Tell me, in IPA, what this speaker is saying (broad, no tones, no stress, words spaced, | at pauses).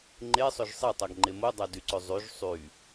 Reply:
ŋ͡ǃesˤøʒ sˤetˤɑɡŋ͡ǃe modˤɑdyǀø zˤyʒ sˤy